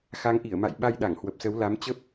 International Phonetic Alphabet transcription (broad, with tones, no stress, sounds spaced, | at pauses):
x a˨˦ ŋ ʔ i˧˩ ə̯ m a̰˧˨ j ɓ a˧ j ɗ a˧˩ ŋ h w ə˨˩ p̚ s ə˨˦ w l a˨˦ m t͡ɕ ə˦˥ p̚